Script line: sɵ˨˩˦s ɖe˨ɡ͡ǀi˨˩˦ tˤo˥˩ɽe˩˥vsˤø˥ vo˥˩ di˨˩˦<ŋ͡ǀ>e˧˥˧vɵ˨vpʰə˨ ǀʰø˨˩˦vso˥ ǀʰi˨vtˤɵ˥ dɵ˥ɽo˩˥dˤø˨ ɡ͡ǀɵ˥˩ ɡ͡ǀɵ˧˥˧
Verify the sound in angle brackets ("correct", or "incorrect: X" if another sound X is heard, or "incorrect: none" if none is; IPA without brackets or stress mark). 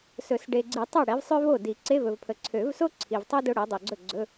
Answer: incorrect: ǀ